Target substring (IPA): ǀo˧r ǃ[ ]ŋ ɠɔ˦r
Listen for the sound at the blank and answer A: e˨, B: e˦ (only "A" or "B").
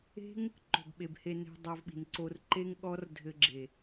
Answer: B